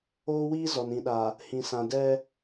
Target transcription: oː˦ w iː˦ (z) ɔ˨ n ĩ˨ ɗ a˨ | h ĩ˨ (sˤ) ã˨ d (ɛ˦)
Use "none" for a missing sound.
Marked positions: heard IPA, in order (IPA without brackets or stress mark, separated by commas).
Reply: z, s, ɛ˦